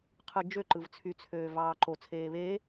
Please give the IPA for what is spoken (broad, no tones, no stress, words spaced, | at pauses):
qʰɯd͡ʒø ǃɯvt͡sʰyt͡sʰøː vɑːǃot͡sʰeː βeː